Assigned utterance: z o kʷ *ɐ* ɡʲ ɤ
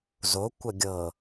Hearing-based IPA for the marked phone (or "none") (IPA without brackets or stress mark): ɐ